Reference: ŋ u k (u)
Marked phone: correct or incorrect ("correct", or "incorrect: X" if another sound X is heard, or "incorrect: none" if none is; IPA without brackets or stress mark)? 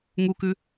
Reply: incorrect: ʉ